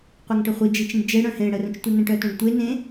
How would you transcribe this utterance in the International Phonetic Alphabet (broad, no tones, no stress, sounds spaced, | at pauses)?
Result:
qʷ œ ŋ ʈ ə χʷ i d͡ʒ i t͡ʃ ĩ ɖ d͡ʒ e ɽ œ̃ h ẽ ɽ ə r ə̃ t͡ʃ tʷ ə n ə̃ ʈ œ t œ̃ ɖ tʷ e n ẽ